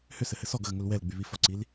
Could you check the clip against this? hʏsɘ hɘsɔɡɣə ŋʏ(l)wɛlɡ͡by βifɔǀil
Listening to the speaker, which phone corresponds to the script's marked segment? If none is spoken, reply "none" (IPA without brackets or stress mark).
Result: l